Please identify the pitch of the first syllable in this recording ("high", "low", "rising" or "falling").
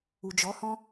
low